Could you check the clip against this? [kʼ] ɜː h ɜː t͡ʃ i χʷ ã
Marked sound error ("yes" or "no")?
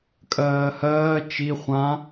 no